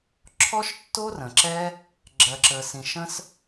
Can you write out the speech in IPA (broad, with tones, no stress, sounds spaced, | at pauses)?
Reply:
ǁʰ ɔ˦ ʃ tː o˦ r ə̃˨ ǁ ɛ˦ | ɡ͡ǁ ɜ˨ ǁ ə˨ s ĩ˨ ʃ ə̃˦ s